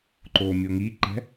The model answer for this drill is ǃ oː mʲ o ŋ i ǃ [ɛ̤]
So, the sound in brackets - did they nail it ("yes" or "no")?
yes